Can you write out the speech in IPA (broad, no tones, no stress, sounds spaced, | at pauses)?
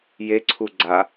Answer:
j e ǀʰ u ɡ͡ǀ a